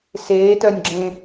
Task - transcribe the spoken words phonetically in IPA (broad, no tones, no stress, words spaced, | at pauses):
seːtœnʲɡ͡ǁẽ